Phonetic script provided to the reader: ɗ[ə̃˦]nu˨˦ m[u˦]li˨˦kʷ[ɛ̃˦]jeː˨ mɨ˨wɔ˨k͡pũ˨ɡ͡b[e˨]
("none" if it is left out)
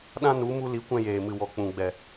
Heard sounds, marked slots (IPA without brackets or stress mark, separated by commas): ã˦, u˧, ɛ̃˧, ɛ˨